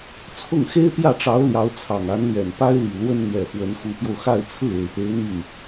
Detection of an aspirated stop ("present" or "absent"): present